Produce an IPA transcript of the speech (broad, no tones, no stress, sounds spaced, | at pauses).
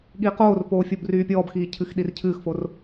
ɠ iː q oː r p oː fʲ o b r yː pʲ ɔː b x iː cʰ ɨ x ɗ i r cʰ ɨː x f o r